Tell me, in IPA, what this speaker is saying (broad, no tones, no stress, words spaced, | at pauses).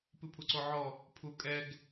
pɨpʰuǀoʕɔ | pʰukʼɛɡ